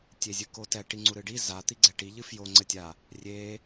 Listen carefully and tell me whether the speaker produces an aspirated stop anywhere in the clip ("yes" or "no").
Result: no